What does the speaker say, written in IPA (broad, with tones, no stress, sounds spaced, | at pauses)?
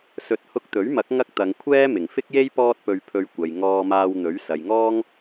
s ɵ˨˥ t̚ h ʊ˧ k̚ t̪ ɵ˨˥ ɥ m ɐ˨˥ k̚ ŋ ɐ˥ k̚ t̪ ɐ˨˧ ŋ kʷʰ ɛː˥ m ɪ˨˩ ŋ f ɪ˥ k̚ j e˥ j p ɔː˥ t̚ p ɵ˧ ɥ pʰ ɵ˧ ɥ kʷ ɐ˨ j ŋ ɔː˧ m aː˧ w n̪ ɵ˨˥ ɥ s ɐ˨ j ŋ ɔː˥ ŋ